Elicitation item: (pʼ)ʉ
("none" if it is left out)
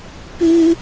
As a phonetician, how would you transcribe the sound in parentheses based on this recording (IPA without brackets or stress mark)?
p